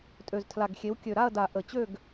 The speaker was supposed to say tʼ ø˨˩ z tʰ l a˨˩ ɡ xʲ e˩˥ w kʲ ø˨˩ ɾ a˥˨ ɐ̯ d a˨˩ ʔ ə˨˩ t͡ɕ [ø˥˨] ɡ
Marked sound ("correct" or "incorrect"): correct